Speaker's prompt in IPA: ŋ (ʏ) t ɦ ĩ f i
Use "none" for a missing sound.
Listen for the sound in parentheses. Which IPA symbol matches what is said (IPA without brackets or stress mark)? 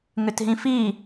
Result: ʏ